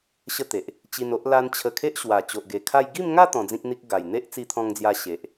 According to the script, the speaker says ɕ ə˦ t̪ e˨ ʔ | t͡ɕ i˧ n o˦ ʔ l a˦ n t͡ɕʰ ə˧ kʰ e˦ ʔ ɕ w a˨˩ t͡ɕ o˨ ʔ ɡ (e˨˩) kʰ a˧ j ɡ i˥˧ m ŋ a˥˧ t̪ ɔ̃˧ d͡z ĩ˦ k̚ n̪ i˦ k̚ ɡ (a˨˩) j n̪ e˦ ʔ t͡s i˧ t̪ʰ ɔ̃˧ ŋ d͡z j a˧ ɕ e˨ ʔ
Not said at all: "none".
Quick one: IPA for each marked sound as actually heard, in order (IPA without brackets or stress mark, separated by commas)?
e˨˩, a˨˩